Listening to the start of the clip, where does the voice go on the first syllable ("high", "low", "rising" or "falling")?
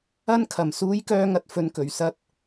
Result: high